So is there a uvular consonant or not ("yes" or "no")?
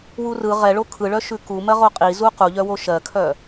yes